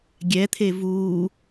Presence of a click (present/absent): absent